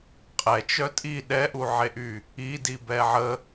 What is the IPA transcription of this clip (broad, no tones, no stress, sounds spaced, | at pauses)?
qʼ ɛ t͡ʃ œ tʼ i ɗ ɛ ʔ u ʕ e ʔ y | i d i b ɛ ʕ ə